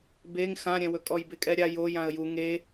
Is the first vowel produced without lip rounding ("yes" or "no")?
yes